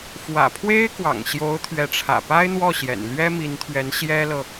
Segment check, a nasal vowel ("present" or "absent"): absent